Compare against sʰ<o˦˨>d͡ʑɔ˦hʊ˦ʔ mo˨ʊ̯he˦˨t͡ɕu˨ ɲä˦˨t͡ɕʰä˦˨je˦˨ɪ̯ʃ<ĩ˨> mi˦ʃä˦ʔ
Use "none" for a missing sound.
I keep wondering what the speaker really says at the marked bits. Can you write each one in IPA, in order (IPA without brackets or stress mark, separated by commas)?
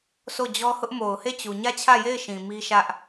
o˦˨, ĩ˨